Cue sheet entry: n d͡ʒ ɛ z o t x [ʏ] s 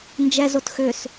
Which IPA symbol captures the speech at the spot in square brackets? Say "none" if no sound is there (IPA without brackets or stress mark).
ʏ